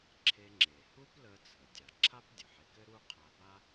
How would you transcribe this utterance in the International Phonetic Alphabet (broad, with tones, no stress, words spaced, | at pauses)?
ǁʰe˧ŋ͡ǁe˩ hu˥plə˧ t͡sʰə˩ dʲa˩ ǁʰa˥pdʲə˩ħe˧kɘ˥ ɾu˥qʰa˧ba˥